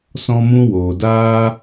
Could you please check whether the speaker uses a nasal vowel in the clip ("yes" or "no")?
yes